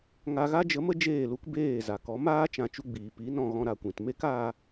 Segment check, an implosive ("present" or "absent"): absent